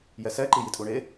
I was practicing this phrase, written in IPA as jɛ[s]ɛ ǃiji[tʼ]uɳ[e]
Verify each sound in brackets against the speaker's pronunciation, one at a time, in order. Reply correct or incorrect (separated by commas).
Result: correct, correct, correct